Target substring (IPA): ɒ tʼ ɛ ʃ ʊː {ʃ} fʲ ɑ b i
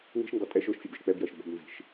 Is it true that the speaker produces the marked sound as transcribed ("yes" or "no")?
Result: yes